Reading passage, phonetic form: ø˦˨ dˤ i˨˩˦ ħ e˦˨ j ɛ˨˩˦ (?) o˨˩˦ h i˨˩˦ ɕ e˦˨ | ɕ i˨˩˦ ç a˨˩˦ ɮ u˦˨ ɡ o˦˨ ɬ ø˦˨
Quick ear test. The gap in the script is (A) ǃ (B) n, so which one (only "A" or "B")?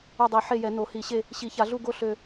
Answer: B